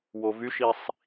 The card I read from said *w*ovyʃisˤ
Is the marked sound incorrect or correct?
correct